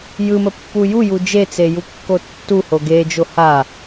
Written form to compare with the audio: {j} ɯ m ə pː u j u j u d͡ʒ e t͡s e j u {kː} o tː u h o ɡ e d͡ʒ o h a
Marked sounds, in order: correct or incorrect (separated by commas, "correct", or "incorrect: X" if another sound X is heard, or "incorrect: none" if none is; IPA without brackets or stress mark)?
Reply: correct, correct